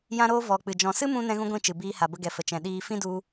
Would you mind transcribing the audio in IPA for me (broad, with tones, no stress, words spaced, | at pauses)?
jã˦ɾoː˦ vɔ˧ k͡pɨ˨ d͡ʒɔ̃˨sɨ˦mũ˧ nɛ̃˦ɣũ˦ɡʷĩ˦˨t͡ʃɨ˨ biː˧ha˨bə˧ɡɛ˨ fə˨t͡ʃɛ̃˨ ɗiː˧fĩ˦du˧